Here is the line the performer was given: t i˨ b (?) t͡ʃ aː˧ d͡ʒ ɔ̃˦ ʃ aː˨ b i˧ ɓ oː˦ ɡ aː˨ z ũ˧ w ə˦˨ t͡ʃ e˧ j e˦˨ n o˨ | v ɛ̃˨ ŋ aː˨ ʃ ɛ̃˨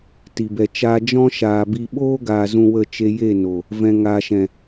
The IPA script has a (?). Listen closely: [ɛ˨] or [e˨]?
ɛ˨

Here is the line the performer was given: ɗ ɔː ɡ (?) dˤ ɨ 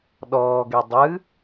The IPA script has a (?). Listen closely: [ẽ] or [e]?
e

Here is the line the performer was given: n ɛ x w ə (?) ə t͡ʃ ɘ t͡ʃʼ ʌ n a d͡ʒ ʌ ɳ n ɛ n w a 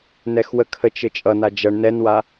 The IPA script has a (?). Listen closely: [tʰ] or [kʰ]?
kʰ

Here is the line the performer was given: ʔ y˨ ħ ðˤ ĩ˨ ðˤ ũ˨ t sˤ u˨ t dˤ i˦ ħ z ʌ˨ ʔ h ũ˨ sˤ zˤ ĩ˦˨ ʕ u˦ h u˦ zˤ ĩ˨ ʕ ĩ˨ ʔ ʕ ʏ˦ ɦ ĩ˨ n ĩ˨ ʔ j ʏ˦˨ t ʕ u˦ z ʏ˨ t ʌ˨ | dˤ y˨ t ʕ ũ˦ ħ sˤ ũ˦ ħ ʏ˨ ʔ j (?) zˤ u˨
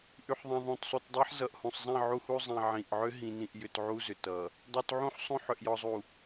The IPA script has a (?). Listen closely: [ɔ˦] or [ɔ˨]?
ɔ˨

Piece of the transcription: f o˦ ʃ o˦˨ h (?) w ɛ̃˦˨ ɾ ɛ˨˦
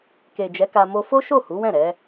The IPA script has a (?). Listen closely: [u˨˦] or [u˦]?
u˨˦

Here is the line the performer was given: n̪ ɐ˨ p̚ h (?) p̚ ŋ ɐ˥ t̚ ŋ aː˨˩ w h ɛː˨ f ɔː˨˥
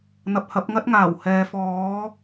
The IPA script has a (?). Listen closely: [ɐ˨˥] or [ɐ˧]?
ɐ˨˥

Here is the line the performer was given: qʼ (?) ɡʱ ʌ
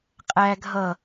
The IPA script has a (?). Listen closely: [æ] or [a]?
æ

